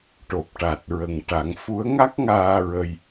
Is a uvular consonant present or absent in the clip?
absent